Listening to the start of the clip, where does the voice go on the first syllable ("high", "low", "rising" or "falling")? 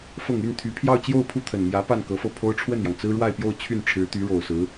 low